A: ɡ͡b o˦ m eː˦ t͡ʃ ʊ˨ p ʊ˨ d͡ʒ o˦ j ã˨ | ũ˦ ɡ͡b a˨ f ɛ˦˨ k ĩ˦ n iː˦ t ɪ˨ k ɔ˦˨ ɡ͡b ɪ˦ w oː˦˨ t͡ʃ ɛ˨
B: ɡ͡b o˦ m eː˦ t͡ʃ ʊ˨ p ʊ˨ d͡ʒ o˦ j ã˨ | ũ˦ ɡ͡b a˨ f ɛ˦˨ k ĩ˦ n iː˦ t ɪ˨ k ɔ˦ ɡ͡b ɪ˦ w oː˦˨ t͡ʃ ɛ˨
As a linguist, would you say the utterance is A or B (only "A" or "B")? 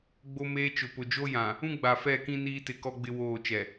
B